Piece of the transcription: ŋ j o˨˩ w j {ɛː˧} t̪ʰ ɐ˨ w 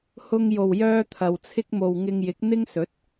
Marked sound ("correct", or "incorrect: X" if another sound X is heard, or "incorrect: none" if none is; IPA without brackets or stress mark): incorrect: œː˧